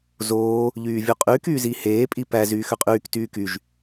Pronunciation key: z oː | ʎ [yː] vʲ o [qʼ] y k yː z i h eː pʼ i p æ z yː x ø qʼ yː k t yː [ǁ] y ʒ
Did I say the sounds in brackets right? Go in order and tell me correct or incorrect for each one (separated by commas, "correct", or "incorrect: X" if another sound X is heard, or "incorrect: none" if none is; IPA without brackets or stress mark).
correct, correct, incorrect: k